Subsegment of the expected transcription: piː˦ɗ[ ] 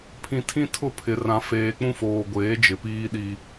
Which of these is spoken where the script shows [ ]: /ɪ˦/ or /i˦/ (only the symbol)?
i˦